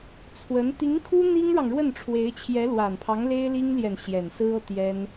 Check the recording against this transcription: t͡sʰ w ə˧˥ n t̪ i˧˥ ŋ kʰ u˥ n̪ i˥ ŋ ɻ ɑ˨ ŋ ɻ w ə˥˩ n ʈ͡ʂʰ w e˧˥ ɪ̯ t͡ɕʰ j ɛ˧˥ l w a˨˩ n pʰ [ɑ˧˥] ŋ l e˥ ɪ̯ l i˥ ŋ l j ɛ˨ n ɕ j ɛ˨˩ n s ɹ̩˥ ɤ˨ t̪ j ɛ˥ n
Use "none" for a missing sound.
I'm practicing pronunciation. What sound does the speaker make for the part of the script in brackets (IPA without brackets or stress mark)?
ɑ˧˥